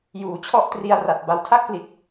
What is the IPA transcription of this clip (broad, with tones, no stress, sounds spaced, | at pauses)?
j uː˩˦ t͡ɕʰ ɔ˦˥ ʔ t r i˧ a̯ r a˨˩ t̚ b a˧ w tʰ a˥˩ k̚ p l i˨˩ t̚